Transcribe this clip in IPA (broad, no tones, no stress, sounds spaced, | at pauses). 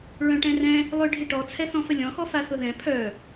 ɹ œ̃ ʈ ɛ̃ r ɛ̃ | lˠ ʏ ɖʱ ɪ ʈ ɔ t͡sʰ ɛ θ ɔ̃ f ə lʲ ɔ̃ x ɔ f a θ ʊ ð ɛ̃ pʰ œ